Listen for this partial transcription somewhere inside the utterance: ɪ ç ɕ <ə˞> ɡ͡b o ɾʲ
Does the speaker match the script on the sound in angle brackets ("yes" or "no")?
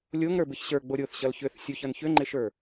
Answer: yes